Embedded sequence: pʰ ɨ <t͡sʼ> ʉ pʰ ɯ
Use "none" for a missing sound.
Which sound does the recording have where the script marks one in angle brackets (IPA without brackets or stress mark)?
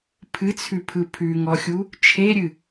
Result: t͡sʰ